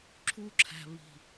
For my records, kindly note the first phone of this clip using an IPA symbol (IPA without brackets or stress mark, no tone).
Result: ǁʰ